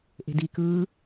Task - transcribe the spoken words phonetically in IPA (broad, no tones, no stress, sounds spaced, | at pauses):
ʔ e̤ d i k ɯː